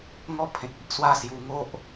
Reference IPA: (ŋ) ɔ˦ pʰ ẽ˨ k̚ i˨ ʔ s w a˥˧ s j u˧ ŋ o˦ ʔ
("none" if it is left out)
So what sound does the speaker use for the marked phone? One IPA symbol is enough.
ŋ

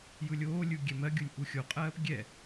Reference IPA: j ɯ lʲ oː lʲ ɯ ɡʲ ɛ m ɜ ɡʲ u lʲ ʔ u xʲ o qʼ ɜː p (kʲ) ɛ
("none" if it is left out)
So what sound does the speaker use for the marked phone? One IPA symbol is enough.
ɡʲ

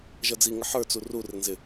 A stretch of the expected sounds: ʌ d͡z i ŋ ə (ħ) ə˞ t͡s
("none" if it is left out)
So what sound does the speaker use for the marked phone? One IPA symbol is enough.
ħ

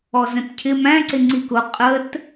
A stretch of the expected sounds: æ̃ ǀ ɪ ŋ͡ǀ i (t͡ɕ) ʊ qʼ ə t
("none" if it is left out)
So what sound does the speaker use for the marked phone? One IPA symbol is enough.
k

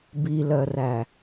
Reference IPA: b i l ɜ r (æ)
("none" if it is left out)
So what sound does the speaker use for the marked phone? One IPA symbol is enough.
æ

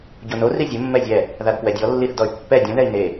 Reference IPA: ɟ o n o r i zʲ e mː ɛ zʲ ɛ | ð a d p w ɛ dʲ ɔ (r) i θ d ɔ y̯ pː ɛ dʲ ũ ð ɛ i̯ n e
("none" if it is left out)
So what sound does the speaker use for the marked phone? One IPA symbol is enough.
lː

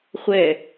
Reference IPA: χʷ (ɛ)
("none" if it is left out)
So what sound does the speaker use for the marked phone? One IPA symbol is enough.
ɛ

